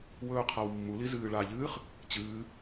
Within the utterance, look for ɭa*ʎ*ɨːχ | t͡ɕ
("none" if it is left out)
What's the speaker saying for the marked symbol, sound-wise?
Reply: ʎ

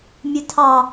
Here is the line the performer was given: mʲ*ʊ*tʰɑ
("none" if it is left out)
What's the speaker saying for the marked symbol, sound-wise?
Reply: ʊ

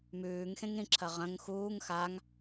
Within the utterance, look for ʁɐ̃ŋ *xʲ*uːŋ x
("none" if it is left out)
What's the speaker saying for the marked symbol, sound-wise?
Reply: x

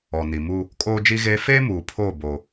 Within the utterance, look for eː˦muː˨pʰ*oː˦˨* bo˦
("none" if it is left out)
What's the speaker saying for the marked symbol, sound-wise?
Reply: oː˦˨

